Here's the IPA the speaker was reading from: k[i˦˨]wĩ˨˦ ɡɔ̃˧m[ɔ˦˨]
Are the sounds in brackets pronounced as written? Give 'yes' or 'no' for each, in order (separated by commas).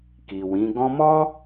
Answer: no, no